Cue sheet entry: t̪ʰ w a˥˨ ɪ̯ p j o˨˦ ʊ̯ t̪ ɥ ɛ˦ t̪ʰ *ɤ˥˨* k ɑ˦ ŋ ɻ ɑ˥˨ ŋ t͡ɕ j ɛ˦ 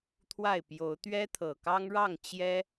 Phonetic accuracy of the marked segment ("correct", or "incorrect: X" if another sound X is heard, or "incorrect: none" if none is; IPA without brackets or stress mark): incorrect: ɤ˨˩